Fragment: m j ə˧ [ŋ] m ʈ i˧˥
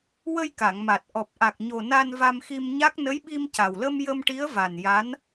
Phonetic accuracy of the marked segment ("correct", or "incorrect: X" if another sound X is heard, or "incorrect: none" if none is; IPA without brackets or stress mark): incorrect: none